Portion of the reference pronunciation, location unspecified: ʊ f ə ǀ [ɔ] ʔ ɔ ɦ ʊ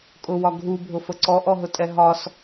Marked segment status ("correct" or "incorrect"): correct